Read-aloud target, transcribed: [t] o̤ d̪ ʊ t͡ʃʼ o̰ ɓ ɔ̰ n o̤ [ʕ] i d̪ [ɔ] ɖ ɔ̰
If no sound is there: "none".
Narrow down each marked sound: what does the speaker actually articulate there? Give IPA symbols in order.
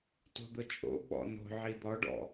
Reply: t, ʕ, ɔ

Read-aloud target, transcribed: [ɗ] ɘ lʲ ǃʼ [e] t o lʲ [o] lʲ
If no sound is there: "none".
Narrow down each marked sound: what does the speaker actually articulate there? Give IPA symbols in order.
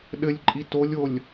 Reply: ɗ, i, o

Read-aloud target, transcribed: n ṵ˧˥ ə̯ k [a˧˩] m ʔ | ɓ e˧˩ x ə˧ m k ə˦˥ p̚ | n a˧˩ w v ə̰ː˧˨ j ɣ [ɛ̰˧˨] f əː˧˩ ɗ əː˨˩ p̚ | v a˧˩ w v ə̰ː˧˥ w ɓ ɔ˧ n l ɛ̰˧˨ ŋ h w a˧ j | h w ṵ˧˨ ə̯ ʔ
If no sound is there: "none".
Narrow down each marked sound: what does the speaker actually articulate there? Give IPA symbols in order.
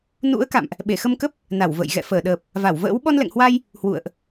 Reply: a̰˧˨, ɛ̰˧˨

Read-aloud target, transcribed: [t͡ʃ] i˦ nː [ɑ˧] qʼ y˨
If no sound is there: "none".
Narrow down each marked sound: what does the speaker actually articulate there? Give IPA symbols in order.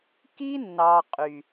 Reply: k, ɑ˧

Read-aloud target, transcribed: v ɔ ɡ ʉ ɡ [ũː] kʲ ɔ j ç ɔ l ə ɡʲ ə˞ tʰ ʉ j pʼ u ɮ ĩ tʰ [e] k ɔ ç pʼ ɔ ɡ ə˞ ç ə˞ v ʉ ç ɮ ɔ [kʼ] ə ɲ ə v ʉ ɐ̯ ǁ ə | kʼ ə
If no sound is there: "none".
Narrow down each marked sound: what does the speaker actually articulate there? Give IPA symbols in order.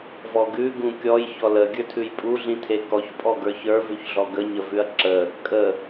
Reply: ũ, e, ɡ

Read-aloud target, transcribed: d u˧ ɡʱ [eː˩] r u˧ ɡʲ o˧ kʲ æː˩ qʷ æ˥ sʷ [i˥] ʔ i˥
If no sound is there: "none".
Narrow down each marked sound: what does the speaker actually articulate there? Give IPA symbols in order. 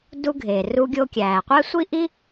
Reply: eː˩, i˥

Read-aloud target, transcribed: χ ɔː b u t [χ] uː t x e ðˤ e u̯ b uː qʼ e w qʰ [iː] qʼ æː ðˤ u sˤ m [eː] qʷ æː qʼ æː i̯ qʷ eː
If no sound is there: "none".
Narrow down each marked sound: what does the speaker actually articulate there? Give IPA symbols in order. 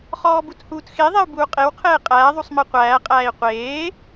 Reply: h, eː, e

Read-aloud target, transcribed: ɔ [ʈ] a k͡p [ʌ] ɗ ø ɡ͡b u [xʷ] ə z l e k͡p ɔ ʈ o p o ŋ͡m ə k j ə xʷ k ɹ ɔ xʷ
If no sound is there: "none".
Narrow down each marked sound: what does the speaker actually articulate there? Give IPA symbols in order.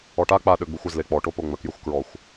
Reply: ʈ, a, xʷ

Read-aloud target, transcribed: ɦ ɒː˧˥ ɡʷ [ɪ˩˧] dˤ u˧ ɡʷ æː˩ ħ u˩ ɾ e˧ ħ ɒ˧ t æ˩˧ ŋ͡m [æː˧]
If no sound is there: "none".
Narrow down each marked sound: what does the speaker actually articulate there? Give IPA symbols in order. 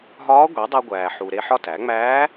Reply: i˩˧, æː˧˥

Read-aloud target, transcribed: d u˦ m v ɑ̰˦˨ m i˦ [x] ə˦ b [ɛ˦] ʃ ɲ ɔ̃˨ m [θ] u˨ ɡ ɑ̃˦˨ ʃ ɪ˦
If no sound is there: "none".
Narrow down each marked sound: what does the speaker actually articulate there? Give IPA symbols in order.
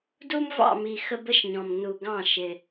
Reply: x, ə˦, n

